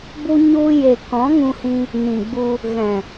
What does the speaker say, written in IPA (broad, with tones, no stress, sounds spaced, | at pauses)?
b u˧ ɲ u˧ j e˨ k ɔ̃˨˦ ŋ ũ˧ h ĩ˧ | n ĩ˨ ɡ͡b u˧ | ɣ ɛ̃˨